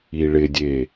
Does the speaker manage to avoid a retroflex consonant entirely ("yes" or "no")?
no